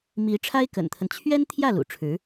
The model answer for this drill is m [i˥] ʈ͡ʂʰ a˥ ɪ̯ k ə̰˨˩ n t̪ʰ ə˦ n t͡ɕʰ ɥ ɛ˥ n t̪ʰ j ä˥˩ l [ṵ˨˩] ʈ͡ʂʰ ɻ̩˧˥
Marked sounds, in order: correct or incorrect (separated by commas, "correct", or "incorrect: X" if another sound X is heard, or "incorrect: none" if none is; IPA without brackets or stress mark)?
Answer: incorrect: i˧˥, correct